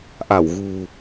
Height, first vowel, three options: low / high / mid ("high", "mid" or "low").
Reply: low